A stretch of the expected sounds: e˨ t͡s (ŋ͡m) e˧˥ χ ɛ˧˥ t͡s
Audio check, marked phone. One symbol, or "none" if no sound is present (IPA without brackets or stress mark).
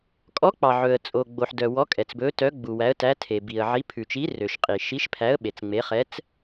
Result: ŋ͡m